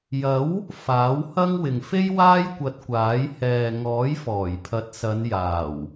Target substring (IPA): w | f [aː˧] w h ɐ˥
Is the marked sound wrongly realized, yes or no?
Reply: yes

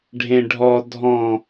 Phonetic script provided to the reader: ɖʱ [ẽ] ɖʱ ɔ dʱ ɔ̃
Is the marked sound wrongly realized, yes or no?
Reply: no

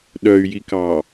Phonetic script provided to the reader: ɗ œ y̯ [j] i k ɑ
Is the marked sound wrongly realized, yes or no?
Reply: no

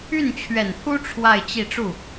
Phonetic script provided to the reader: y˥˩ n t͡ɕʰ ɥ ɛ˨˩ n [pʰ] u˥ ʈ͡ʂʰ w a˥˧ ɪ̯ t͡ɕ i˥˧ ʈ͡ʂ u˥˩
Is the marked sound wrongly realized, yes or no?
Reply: no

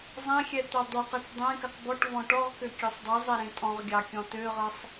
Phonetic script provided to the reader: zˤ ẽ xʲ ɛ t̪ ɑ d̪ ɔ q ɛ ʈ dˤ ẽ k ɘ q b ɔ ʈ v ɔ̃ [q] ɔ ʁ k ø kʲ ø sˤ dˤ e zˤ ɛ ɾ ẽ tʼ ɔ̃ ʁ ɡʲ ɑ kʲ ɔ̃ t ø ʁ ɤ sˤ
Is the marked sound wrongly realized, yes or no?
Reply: yes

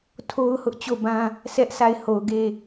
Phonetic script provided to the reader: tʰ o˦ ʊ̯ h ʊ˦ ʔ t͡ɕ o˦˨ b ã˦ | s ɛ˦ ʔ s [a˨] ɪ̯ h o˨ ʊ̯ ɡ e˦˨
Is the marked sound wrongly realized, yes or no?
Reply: yes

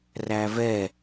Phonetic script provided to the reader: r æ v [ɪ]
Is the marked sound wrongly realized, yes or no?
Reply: yes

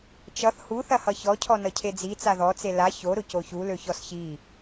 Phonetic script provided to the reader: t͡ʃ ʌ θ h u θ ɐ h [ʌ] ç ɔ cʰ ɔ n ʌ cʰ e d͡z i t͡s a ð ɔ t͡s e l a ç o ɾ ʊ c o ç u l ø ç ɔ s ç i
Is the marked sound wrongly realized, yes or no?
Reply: no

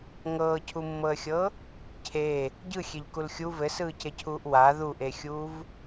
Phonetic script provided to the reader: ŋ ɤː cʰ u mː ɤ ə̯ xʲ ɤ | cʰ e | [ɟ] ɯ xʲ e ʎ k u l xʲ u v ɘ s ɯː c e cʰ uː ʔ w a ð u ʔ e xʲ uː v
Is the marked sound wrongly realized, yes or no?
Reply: no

